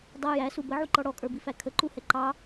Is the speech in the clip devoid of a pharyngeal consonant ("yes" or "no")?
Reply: no